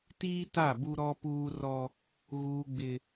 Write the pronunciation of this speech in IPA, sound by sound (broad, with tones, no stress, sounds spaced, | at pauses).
t iː˦ t a˦˨ b u˦ ɾ ɔ˦ p uː˦ r ɔ˦ | ɣ uː˦ ɡ͡b ɪ˦